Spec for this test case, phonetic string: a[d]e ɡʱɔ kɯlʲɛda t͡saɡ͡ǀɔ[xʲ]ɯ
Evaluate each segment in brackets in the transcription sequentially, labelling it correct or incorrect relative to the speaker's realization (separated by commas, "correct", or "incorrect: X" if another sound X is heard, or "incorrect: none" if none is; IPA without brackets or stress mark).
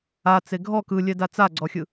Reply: incorrect: t͡s, correct